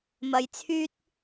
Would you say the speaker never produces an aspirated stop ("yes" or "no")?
no